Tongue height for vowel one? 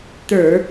mid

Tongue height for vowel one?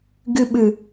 high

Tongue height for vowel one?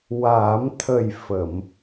low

